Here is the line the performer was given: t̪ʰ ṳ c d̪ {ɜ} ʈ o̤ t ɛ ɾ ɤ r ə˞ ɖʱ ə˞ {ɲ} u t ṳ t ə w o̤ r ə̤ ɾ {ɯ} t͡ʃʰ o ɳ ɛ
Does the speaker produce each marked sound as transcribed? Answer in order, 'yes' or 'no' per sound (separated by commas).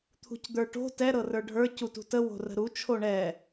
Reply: no, no, no